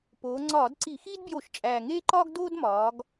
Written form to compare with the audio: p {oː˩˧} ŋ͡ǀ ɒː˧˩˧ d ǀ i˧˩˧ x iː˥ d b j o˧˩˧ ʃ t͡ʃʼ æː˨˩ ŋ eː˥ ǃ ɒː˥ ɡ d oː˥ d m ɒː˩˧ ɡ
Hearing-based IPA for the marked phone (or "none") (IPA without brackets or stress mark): oː˩˧